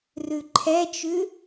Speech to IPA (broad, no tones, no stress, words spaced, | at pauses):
rʉǃʰɛt͡ʃʉ